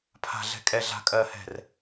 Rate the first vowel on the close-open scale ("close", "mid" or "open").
open